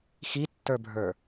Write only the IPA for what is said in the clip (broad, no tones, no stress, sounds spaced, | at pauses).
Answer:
x i tː ə˞ bʱ ə˞